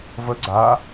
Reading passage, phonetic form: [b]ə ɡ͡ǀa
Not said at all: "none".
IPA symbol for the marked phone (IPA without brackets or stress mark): v